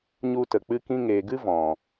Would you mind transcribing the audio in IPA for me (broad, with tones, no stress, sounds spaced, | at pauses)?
ɲ u˧ t ə˨ k͡p ɨ˧ k ĩ˧ ŋ eː˨ ɡ ɨ˦ v ɔ̃˨